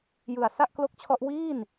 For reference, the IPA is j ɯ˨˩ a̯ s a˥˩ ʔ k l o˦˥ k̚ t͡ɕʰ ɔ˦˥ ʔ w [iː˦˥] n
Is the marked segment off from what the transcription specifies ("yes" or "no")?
yes